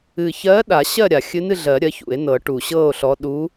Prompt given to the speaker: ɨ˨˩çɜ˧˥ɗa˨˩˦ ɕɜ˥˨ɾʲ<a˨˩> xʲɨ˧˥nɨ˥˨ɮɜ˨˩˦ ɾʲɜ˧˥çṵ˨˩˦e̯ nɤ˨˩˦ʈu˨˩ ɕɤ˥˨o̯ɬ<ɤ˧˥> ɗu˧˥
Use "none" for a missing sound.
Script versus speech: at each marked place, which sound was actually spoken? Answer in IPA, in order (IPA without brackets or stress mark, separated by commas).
a˨˩, ɔ˧˥